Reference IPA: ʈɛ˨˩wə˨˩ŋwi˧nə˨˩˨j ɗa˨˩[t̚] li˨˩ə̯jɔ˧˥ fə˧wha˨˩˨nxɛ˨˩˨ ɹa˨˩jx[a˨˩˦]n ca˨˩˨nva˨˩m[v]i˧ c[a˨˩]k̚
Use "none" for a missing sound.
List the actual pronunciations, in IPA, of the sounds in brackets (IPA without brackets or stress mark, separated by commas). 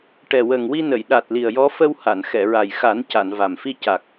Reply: t̚, a˨˩˦, f, a˨˩